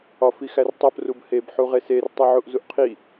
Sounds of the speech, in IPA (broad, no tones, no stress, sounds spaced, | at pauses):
ɒ f i x æ r tˤ o p r u b h e b ħ u ʁ e s e r tˤ u ʕ u ʔ z u ʔ qʰ i